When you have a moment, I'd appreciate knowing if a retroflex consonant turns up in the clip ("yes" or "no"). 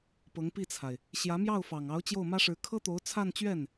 yes